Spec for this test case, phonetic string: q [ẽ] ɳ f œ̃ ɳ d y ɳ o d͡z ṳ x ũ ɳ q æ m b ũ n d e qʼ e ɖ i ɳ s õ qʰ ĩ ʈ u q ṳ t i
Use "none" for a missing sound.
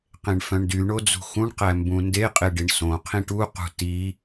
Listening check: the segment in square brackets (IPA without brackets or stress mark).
ẽ